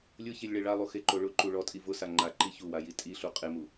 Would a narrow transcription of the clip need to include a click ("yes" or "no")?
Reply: yes